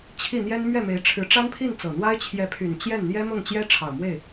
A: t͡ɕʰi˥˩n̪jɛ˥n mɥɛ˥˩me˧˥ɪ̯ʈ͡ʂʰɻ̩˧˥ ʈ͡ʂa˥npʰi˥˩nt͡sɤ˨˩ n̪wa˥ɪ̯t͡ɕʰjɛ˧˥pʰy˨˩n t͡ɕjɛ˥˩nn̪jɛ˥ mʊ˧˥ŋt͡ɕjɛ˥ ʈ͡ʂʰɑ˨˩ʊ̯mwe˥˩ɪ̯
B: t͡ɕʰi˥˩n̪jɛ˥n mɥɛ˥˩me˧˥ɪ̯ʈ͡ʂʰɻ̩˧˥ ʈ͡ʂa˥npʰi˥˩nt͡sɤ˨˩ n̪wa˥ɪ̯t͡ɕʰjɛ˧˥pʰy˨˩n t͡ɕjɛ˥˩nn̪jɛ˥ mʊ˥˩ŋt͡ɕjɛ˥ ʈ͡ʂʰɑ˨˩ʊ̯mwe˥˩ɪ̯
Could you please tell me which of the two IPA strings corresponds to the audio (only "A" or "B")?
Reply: B